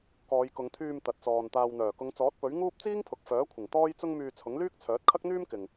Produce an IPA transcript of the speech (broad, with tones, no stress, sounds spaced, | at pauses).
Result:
k ɔː˨˧ j k ʊ˨˧ ŋ t̪ʰ yː˧ m t̪ ɐ˨ t̚ t͡s ɔː˨ n t̪ aː˨ w n̪ œː˨˩ k ʊ˨˧ ŋ t͡s ɔː˨˥ t̚ p ɵ˨˥ ɥ ŋ uː˥ p̚ t͡s iː˥ ŋ pʰ ʊ˨ k̚ f œː˨˥ kʷʰ ɪ˨˩ ŋ t̪ ɔː˥ j t͡s ʊ˥ ŋ m yː˧ t͡sʰ ʊ˨˥ ŋ l yː˥ k̚ t͡sʰ œː˨˥ t̚ kʰ ɐ˥ k̚ n̪ yː˥ m k ɪ˨ ŋ